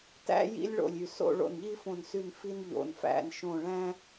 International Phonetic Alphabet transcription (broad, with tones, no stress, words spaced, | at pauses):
tæ̰˦jḭ˦lʲɭo̰˧˩lʲy˧˩ so̰˦ ɭo̰˧˩nʎi˦fõ˧˩nsy˧˩n fi˦nʎo̰˧˩n fæ̰˧˩nʃõ˧˩ɭæ̃˦